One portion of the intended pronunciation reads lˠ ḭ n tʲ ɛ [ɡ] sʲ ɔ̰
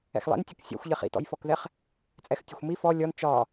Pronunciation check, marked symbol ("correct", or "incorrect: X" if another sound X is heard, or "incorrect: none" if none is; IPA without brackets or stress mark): incorrect: k